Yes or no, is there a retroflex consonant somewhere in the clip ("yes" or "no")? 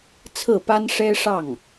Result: yes